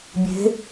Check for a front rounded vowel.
absent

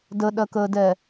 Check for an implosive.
present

